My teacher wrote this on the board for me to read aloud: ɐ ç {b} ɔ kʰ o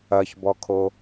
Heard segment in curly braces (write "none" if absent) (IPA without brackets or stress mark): b